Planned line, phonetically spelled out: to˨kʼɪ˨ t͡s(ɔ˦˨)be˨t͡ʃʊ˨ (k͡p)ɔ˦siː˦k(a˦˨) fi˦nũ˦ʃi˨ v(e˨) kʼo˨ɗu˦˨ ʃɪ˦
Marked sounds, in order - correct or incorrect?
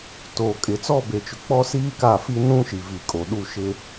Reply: correct, correct, correct, incorrect: i˨

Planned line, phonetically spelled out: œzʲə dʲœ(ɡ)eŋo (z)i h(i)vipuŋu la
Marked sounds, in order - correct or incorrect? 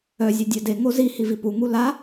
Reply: incorrect: d, correct, correct

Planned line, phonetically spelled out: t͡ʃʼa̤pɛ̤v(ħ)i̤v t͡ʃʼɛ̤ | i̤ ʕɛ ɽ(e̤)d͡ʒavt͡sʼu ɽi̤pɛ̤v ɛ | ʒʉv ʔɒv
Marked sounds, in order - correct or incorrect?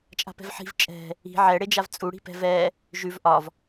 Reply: correct, incorrect: e

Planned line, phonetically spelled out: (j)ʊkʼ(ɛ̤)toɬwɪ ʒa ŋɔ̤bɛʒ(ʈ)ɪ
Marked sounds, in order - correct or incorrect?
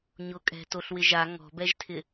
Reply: incorrect: ɲ, correct, incorrect: tʰ

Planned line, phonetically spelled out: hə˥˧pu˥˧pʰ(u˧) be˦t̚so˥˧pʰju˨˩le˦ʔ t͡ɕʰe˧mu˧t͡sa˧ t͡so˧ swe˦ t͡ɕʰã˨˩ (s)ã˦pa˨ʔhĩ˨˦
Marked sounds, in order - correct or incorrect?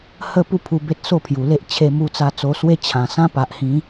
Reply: correct, correct

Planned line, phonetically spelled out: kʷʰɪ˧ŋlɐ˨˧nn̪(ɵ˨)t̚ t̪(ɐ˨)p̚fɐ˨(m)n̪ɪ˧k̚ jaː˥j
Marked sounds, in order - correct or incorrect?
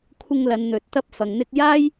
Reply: correct, incorrect: ɐ˧, incorrect: ŋ

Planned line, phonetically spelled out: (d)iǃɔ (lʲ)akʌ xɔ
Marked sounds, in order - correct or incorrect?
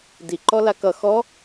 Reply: correct, incorrect: l

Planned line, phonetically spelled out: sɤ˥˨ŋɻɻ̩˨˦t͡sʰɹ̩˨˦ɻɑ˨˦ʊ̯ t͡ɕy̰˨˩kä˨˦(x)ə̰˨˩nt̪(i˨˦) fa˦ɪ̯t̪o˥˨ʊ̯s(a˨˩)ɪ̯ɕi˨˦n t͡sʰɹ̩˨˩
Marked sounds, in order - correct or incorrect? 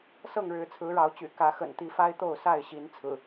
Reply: correct, correct, incorrect: a˥˨

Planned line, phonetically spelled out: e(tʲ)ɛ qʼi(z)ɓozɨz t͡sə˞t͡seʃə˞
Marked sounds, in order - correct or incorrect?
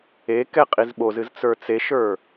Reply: incorrect: k, correct

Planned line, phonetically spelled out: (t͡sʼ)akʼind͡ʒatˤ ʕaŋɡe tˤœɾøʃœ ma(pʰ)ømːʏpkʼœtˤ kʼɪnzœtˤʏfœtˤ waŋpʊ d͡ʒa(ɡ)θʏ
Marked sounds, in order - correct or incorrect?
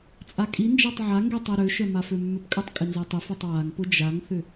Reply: correct, incorrect: f, incorrect: ŋ

